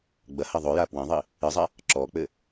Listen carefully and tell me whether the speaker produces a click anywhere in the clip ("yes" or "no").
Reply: yes